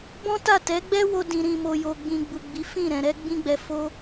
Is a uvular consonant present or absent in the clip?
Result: absent